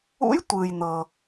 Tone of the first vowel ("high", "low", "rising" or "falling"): rising